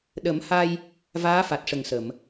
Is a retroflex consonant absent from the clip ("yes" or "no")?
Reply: no